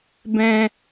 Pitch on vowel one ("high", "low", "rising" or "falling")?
high